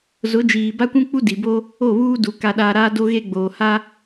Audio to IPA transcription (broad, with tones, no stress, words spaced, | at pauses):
zʊ˨˦d͡ʒiː˨ba˦kʷũ˦ k͡pu˦di˨bo˦ | o˦˨βuː˦du˨ ka˦ɗaː˦ ɾaː˦do˦ɣe˦ɡ͡boː˨ ha˦